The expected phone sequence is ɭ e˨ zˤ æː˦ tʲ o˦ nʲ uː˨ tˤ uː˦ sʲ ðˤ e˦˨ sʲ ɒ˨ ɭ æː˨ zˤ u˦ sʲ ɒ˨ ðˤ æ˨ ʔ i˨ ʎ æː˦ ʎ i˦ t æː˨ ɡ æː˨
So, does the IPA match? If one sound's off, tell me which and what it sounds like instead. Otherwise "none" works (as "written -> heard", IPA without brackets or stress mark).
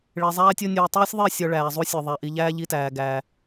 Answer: none